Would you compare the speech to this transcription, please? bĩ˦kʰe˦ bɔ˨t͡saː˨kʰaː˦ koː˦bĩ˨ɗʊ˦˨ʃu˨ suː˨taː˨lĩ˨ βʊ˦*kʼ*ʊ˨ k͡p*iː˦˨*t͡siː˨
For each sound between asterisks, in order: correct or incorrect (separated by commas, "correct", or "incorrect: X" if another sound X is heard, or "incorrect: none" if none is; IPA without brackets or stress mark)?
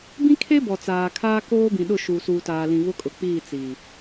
correct, correct